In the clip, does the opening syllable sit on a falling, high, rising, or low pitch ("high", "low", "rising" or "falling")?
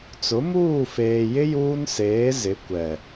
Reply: rising